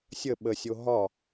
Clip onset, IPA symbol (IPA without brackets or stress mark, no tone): sʲ